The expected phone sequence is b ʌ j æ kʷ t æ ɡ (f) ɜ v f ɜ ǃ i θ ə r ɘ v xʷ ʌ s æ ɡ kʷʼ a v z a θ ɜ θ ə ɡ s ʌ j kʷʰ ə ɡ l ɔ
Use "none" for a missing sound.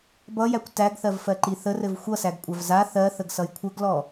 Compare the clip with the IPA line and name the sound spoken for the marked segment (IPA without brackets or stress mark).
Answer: θ